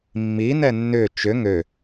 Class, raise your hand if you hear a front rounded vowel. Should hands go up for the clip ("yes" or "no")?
yes